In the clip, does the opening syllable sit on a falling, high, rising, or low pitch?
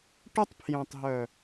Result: high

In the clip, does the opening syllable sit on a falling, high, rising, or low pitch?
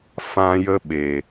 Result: high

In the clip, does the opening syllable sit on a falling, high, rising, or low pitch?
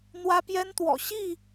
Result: high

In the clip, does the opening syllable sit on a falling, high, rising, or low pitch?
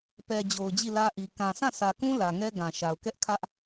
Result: low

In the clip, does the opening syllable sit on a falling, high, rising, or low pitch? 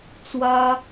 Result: high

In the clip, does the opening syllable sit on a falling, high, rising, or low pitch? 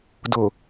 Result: low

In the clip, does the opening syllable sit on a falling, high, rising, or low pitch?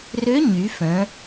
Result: rising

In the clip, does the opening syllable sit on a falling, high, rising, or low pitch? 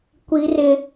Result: high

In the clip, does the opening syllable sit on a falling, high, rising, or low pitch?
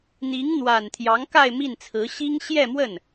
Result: rising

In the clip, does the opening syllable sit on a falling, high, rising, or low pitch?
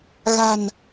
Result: low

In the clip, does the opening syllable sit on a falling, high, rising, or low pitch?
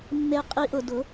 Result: high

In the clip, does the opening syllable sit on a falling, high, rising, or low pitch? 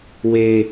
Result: low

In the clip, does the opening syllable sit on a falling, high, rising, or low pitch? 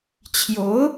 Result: rising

